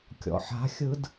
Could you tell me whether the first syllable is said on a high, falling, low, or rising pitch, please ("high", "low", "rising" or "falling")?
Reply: low